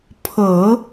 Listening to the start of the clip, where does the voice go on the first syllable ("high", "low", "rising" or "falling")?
low